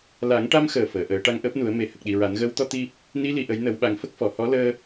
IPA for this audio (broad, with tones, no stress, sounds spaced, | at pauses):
l a˨˩˦ ŋ ʈ a˧ m x əː˨˩ f əː˨˩˨ ʔ əː˨˩˦ ʈ a˧ ŋ ʔ əː˦˥ p̚ n u˨˩˦ ə̯ m e˨˩˨ h ə˨˩ k̚ ɗ i˨˩ ɹ a˨˩˦ n ɣ əː˧˥ w t̪ ɔ˧ t̪ i˧ | n i˧˥ l i˨˩˨ ʔ ə˨˩˦ j n ə˨˩˦ w ɓ a˨˩˦ ŋ f ə˦˥ k̚ f ɔ˨˩˨ h ɔ˧˥ l əː˧